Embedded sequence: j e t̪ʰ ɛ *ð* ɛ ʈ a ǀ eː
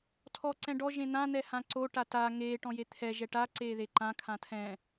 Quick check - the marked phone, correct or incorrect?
incorrect